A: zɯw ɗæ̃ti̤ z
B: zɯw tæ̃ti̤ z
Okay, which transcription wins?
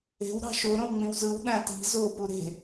A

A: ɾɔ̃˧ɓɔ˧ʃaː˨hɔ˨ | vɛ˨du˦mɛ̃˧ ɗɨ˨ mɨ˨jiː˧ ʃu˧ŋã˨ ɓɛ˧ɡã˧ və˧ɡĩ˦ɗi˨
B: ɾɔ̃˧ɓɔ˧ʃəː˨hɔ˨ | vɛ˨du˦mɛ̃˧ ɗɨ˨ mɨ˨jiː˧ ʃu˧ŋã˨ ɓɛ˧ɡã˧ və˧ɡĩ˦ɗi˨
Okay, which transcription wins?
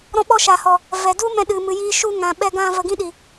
A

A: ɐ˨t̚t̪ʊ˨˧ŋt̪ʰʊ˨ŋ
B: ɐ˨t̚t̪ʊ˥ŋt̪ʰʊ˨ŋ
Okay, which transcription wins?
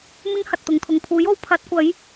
A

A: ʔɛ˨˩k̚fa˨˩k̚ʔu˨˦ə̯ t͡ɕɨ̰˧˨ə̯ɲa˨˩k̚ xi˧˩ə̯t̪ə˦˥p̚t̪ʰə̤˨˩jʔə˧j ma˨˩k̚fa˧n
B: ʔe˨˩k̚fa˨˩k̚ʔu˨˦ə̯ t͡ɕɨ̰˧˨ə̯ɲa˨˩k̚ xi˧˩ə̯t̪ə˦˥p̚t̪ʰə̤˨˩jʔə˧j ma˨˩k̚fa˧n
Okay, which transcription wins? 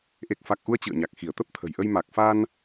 B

